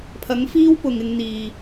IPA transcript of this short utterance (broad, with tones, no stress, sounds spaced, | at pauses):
pʰ ɐ˨˥ ŋ f iː˥ w p ʊ˨ ŋ ɪ˧ ŋ n̪ iː˨